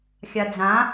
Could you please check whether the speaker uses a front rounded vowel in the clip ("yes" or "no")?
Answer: no